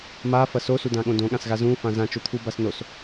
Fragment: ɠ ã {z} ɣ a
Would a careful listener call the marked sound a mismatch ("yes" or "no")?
yes